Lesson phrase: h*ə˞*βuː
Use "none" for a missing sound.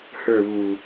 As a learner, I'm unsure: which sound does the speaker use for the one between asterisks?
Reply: ə˞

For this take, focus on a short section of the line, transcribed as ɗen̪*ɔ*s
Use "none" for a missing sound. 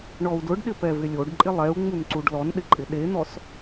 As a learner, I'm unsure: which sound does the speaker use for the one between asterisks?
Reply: ɔ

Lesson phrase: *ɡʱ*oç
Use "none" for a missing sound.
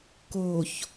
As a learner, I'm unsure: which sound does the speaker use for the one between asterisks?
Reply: k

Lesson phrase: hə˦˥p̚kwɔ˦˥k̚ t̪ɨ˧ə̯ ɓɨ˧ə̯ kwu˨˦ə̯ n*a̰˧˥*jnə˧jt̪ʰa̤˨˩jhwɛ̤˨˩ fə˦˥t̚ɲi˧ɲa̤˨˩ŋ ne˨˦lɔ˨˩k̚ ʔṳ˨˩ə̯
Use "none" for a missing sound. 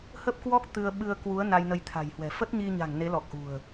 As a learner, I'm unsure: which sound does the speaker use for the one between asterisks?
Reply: a˧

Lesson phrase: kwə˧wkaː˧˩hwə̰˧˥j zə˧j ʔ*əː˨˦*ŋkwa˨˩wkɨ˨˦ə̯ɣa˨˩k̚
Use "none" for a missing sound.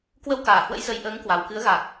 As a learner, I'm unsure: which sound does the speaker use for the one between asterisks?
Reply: əː˨˦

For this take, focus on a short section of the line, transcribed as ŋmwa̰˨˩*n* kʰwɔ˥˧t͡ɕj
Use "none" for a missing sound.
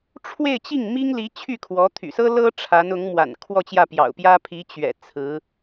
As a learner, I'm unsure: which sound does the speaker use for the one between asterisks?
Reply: n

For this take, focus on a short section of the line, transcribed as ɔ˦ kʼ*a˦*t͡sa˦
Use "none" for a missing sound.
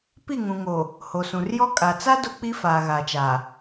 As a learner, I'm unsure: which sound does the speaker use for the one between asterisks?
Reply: a˨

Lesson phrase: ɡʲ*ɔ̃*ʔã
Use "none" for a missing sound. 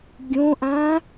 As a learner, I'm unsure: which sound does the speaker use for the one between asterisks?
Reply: õ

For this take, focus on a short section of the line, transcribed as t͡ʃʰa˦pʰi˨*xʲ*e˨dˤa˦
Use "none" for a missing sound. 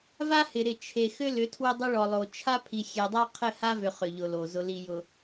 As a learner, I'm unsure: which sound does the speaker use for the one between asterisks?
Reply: xʲ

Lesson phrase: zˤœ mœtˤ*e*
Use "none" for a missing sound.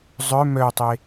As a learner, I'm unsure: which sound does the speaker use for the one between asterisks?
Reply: e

